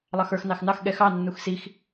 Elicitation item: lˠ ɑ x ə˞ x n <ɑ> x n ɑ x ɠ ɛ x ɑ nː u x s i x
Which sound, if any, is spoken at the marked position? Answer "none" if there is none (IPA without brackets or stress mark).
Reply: ɑ